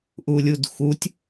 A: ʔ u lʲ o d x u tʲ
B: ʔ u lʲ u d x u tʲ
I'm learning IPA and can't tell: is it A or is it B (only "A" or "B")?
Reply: B